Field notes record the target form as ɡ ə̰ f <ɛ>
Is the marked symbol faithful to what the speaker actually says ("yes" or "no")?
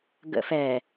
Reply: yes